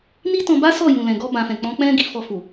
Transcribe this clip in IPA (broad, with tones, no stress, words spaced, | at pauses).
ni˦tɔ̃˧ ba˦sɔ˦˨ jũ˨lɛ̃˨ɡɔ˧ bã˨fɛ̃˨ k͡pɔ̃˨˦ k͡pɛ̃˦ ɡi˦˨fɔ˧fu˨